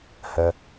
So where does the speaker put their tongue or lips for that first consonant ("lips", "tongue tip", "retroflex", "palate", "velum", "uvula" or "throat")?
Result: throat